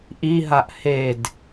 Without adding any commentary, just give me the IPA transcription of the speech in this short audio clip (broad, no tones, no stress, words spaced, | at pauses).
ʔiɦaʔ hed